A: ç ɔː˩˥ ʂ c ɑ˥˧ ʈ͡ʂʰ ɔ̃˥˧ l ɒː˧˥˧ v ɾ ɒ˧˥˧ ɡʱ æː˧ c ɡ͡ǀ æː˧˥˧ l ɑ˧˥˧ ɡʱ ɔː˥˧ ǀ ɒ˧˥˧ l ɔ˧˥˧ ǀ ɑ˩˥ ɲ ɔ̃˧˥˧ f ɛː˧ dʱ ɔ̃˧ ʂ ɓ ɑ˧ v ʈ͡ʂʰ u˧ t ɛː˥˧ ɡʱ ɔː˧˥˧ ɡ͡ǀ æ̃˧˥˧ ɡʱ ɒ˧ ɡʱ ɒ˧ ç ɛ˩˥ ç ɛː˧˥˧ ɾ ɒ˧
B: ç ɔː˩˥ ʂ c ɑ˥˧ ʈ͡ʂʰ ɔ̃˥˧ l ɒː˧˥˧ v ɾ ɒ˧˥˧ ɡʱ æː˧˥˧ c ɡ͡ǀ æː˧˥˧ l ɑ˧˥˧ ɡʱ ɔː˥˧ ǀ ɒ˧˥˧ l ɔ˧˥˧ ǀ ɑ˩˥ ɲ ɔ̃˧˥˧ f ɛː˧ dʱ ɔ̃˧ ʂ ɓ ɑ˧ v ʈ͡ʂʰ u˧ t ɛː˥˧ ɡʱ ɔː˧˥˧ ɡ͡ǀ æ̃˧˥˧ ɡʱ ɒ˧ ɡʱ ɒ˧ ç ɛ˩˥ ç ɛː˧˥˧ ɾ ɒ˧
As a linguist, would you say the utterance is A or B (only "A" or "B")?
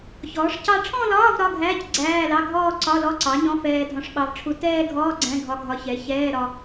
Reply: B